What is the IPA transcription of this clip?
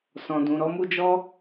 s ɔ̃˨ d ũ˨ ɾ ɔ˨˦ m u˦ d͡ʒ ɔ˦

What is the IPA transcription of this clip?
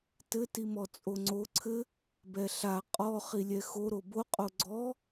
t ɘ t i m ɔ t͡sʼ o ŋ͡ǀ o ǀʰ ɘ | b ɛ ɬ a qʼ ɔ χ i lʲ ɛ x o ɾ o b o qʼ o ɡ͡ǀ ɔ

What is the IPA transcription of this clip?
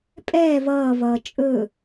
pʼ ɛː v ʌː v ʌː t͡ʃʼ ɵ

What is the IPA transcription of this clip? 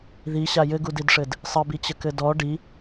ð i ɕ a j ɘ ɡ u d i d ʂ ɘ d | sˤ ɘ b i t͡ɕ ə k ɘ d ɔ ɖ i

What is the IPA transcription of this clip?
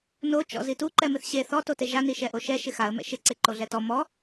n o t͡ʃ ɔ̰ z i t u ǃ ɛ m ɪ θ ɕ e θ ɔ t o t e ʒ a n i ʃ ɛ ʔ o ʃ ɛ ʃ ɪ x a ə̯ m ɛ̰ ʃ ɪ ǀ e ǃ o ɮ ɛ t ɔ m ɔ

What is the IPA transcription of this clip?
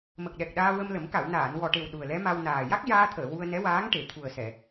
m ə˨˩ k̚ ɗ ɛ˨˩ k̚ ɗ aː˧ w ə˧ m l ə˨˩˦ m k a˨˩˨ w n aː˨˩˨ n w ɔ˨˩ ʈ e˨˩ w ɗ u˨˩ ə̯ l ɛ˧˥ m a˧ w n aː˨˩ j a˦˥ k̚ j aː˧ t̪ʰ əː˨˩˨ w u˧ ə̯ n ɛ˧˥ w aː˧˥ ŋ ʈ e˨˩˨ t̪ʰ u˨˩ ə̯ s ɛ˨˩˨

